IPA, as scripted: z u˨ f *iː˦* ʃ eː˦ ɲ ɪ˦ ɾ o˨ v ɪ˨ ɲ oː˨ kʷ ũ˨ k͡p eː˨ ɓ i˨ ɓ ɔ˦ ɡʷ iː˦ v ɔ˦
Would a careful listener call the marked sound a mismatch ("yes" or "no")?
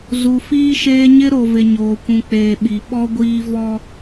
no